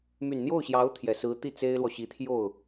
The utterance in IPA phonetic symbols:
m y˨˩ n n̪ j o˥˩ ʊ̯ ɕ j ɑ˧˥ ʊ̯ t̪ʰ j ɛ˨˩ s ɹ̩˧˥ t̪ i˥˩ t͡s e˥ ɪ̯ l w ɔ˨ ɕ i˧˥ t̪ʰ j o˥˩ ʊ̯

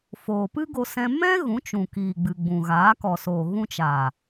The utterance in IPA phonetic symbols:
f oː˨ p ɨ˦ ɡ o˧ s ɛ̃˧ m ɛ̃˦ ɣ ũ˨˦ t͡ʃ ũ˨ k iː˨ ɡ͡b ɨ˨ ɡ͡b ũ˨ ɣ aː˨˦ k ɔ˨ s oː˨ ɣ ũ˧ t͡ʃ aː˨

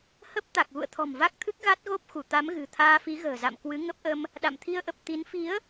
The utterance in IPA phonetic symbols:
h ə˦˥ p̚ t̪ a˨˩ k̚ ɣ ṵ˧˨ ə̯ t̪ʰ ɔ̤˨˩ m v a˦˥ k̚ t̪ʰ ɨ˦˥ k̚ ɣ a˦˥ t̚ ɣ o˦˥ p̚ x u˧˩ t̪ a˨˦ m ɣ ɨ̤˨˩ t̪ʰ aː˧ f i˨˦ ɣ ə̤ː˨˩ z a̰˧˨ m k w ɨ˨˦ ŋ ə˦˥ p̚ ʔ ə˧ m | ɗ a̰˧˨ m t̪ʰ i˧ ə̯ ʔ ə˨˩ p̚ t̪ i˨˦ n f i˨˦ ə̯

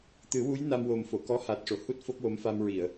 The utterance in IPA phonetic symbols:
t̪ ɨ˨˩˦ w u˧˥ j n a˧ m w o˨˩ m f o˨˩˨ k ɔ˧˥ h a˨˩ t̚ ʂ o˨˩˨ h u˦˥ t̚ f o˦˥ k̚ w o˧˥ m f a˧ m ɹ i˨˩˨ ə̯

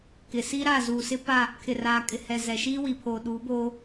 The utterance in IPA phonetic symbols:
k ɪ˨ s i˦ ɾ a˦˨ z uː˨ s ɪ˦ p a˦˨ | kʰ ɪ˨ r aː˨ kʼ ɪ˨ h ɛ˨ z ɛ˨ ʃ iː˦ w i˨ pʰ o˨ ɗ u˨˦ b oː˦

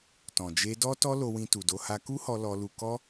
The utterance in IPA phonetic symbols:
t ɔ̃˨ d͡ʒ e˧ d ɔ˦ t ɔ˦ l o˧ w ĩ˧ t u˨ d o˧ h a˧ k u˦ h ɔ˧ l ɔ˧ l u˧ k ɔ˦

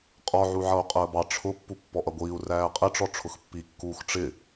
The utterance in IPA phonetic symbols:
qʼ ɔ ʕ u ʕ ʌ u̯ qʼ əː b ɑ ʈ͡ʂʰ ʊ pː u pː ɔ ʔ ʌ ɡʷ iː u̯ r æː qʼ ɪ ʈ͡ʂ ɔ ʈ͡ʂʰ ʊ x pː i kː uː x ʈ͡ʂ ɪ

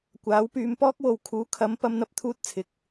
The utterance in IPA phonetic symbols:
kʷ aː˨˥ w p yː˨˧ m p ɔː˥ k̚ w o˨ w kʰ uː˨˥ kʰ ɐ˨˥ m p ɐ˥ m n̪ ɐ˥ p̚ t̪ʰ uː˥ t̚ t͡sʰ ɪ˨ k̚

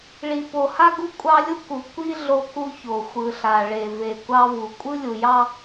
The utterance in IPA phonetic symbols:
ɭ i˨ p o˨ h a˦ ɡ u˦ kʷʼ ɑ˦ lʲ u˦ k u˨ kʷ i˦ ɮ o˦ k u˦ ç o˨ xʷ ɯ˨ ɬ a˨ ɭ e˨ v e˨ kʷ ɑ˦ v u˨ kʷʼ ɯ˦ lʲ u˨ j ɑ˦

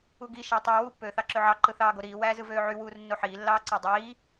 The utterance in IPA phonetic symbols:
u ɡ i ʃ æ tˤ ɑ w u pː øː θ ɑ ǁ ø ʕ ɑ ǃ ɯ θ ɑː ɡ o ɾ iː w æː z ɯ v øː ʕ y w uː r nː o ħ iː lː ɑː ǀ ɑ dˤ iː

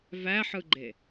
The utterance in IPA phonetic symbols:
v æ ħ ɯ ɡ͡ǃ e

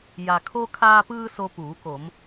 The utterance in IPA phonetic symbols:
j a˩ kʰ o˧ kʰ aː˧ p ɯː˧ s o˧ p uː˩˧ k o˩˧ m

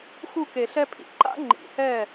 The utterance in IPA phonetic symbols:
x u˥˩ k e˨˩˦ ɬ ɛ˦˥ pʰ ḭ˨˦ ǃ a̰˦˥ ŋ͡ǃ ḭ˨˩˦ h ɛ˥˩

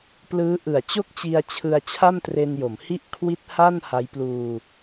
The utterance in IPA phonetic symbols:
p l ɯː˦˥ ʔ ɯ˨˩ a̯ t͡ɕ o˥˩ k̚ t͡ɕ i˧ a̯ t͡ɕʰ ɯ˧ a̯ t͡ɕʰ a˥˩ m t r e˧ n j o˩˦ m h i˥˩ ʔ kʰ w i˦˥ t̚ h a˥˩ n h a˦˥ j p l uː˧

